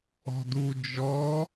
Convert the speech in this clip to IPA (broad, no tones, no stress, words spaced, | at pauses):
ɔ̤du d͡ʒɔ